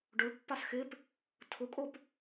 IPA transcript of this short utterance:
ɖ ʊ ɭ pː a s x ɪ p | tʰ ʊ kʼ o p

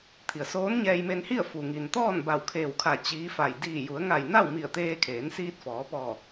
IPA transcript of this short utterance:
t̪ʰ i˩ ə̯ s oː˧˥ n ɲ ɛː˧ j m e˧ n h i˥˨ ə̯ f u˩ ŋ i˩ n t̪ ɔː˥˨ n b a˧˩ w kʰ eː˧˩ w kʰ a˧˩ t͡ɕ iː˧˥ f a˧˩ j d iː˧˩ j u˩˧ ə̯ ŋ a˧˩ j n a˥˨ w m i˧˩ ə̯ t̪ eː˧ kʰ eː˩˧ n s iː˧ t̚ f ɔː˩˧ p ɔː˧˩

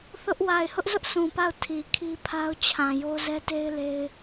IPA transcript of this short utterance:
θ ʊ˦ ʔ w a˨ ɪ̯ h ʊ˦ ʔ z ʊ˦ ʔ s ũ˨ p a˦˨ ʊ̯ tʰ i˨ kʰ i˦ pʰ a˦ ʊ̯ t͡ɕʰ ã˨ j o˦ z ɛ˦ t e˦ ɪ̯ l e˦ ɪ̯

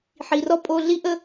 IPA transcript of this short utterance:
ħ i˨ r ɔ˦ pʼ o˧ ɮ i˦ ʔ ə˦

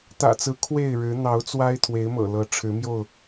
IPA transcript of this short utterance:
t̪ ä̰˨˩ t͡s ɹ̩˨˦ kʰ w e˥˨ ɪ̯ ɻ ɻ̩˨˦ n̪ ɑ˨˦ ʊ̯ t͡s w a˦ ɪ̯ t̪ʰ w e˨˦ ɪ̯ m ɤ̰˨˩ l ɤ˨˦ ʈ͡ʂʰ ɻ̩˨˦ m j o˥˨ ʊ̯

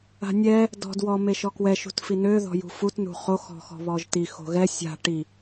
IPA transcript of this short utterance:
a̤ nʲ ɛ | d ɔ̤ d w ɔ m e ʃ ɔ k w ɛ ʃ ṳ t f i n ø ð ɔ̤ j ṳ f u t n ṳ χ o x ɔ̤ x ɔ̤ β ɔ ʒ t i x o̤ ɣ ɛ sʲ a̤ ʈ i

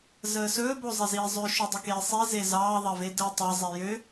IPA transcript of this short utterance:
z əː s ɵː b o zˤ e z iː zˤ ø ʃ ø dˤ ə k eː sˤ i z e z ɑː ðˤ ɐ v e d əː tˤ ɑ zˤ e j ø

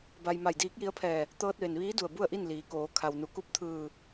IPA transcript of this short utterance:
b a˧ j m a˧˩ j d iː˧˥ k̚ j i˧˥ ə̯ pʰ ɛː˧˩ | t̪ ɤː˧ t̚ ʋ e˩ n ʋ iː˧˥ d u˧˩ ə̯ b u˥˨ ə̯ ʔ i˥˨ n l iː˩˧ k oː˩˧ kʰ a˩ w n u˩˧ k u˧˥ p̚ t̪ʰ ɯː˧˩

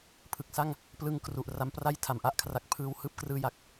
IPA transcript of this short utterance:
pʰ ɯ˨˩ k̚ s a˥˩ ŋ | p l ɯ˧ ŋ k r u˨˩ ʔ r a˦˥ m p r a˥˩ j tʰ a˩˦ m ʔ a˥˩ ʔ kʰ r a˦˥ k̚ pʰ ɯː˧ w h ɯː˥˩ p̚ k r ɯː˥˩ j a˥˩ k̚

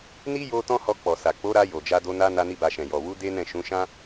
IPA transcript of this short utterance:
n i˦ j o˦ t ɔ̃˦ h ɔ˧ k͡p ɔ˨ s a˨ k͡p o˨˦ ɾ a˧ j o˨ d͡ʒ a˧ d o˧ n a˧ n a˧ n i˧ b a˨ ʃ ɛ̃˨ j ɔ˨ w u˨˦ d e˦ n ɛ̃˦˨ ʃ ũ˨˦ ʃ ã˦

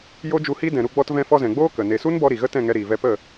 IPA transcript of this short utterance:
j o˦ d͡ʒ u˧ h i˦ d ɛ̃˨ ɾ u˧ ɡ͡b ɔ˧ t v ɛ̃˧ f ɔ˧ z ɛ̃˨ ɡ͡b oː˦ k ə˨ n e˨ s u˦ n b ɔ˧ ɾ i˨ ɣ ə˦ t ɛ̃˦˨ ŋ ɛ˧ ɾ iː˨ v ɛ˧ p ə˦˨

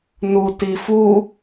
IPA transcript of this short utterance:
n u t i f u

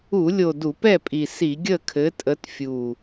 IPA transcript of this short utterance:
u˧˩˧ lʲ o˨˩ d u˧˩˧ p ɛ˥˨ pʼ i˨˩ s i˧˩˧ ɡʲ ə˥˨ kʰ ɘ˨˦ tʼ ə˨˦ t fʲ u˨˩

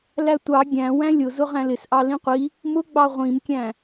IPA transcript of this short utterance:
l æ tʷ ɑ ɡʲ æ̃ w æ̃ lʲ ʊ z ʊ ʁ æ̃ l ɪ s ʔ ɑ l ĩ qʷ i | m ʊ ɡ͡b ɑ ʁʷ ĩ m kʲ æ̃

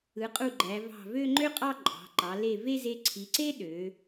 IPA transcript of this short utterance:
ɯ˩˧ qʼ u˧˩ ɡ͡ǃ æ˩˧ v ɑ̤˧˩ v ø˥˧ ŋ͡ǃ ø˥ qʼ ɑ˥˧ ǃʼ ɑ̤˩˧ ǃ ɑ˩˧ l e˧˩ v e˥˧ z e˧ ǀʰ i˩˧ ǀ e˥ ɗ ø˩˧

